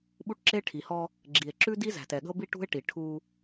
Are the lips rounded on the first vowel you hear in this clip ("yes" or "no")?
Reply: yes